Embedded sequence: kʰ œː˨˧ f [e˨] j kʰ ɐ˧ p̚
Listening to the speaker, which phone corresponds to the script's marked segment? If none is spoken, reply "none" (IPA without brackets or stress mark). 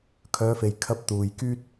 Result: e˨